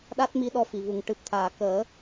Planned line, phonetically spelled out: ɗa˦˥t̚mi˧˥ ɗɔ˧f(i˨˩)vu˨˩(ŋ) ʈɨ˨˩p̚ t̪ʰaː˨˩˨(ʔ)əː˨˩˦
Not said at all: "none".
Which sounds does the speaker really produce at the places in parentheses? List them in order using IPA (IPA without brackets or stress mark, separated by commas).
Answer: i˨˩, ŋ, k